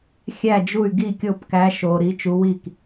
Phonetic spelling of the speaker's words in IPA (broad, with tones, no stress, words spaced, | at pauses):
xʲæ˥˩d͡ʒu˥˩y̯ ɡi˥˩kʲo˥˩pkæ˧˥ ʃo˧ ɾi˧˥t͡ʃu˧˥wi˥˩k